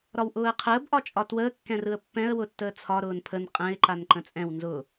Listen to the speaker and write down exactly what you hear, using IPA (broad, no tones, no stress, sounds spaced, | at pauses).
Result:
ɾ ɒ w ʔ ʊː ə̯ qʰ əː b ʔ ɒ t͡ʃʼ ɒ t w əː kː ɛ̃ r ɯ ə̯ pː ɛ̃ ə̯ w ʊ tː əː t͡sʰ ɒ ɾ ʊː n pʰ ə n qʼ ɛ̃ ɪ̯ ǃ a n ǃ ə̃ t͡sʼ ɛ̃ w n z ʊ